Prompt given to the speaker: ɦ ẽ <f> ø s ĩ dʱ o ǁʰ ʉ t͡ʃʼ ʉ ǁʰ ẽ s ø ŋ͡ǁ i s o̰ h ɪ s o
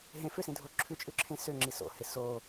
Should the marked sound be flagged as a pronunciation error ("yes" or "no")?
no